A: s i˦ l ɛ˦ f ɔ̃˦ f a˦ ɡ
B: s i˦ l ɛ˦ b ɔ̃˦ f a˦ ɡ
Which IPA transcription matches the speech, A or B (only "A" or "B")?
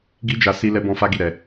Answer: B